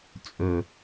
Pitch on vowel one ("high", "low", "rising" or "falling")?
low